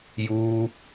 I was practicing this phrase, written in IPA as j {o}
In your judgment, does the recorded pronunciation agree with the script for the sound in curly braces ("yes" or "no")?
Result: no